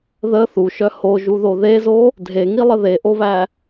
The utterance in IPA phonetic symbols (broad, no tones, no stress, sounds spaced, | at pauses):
ð ə θ u ʃ œ h o ʒ u ð o ð e z o | dʱ e ŋ i lˠ ə ð e ʔ o β æ